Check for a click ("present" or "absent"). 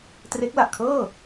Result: absent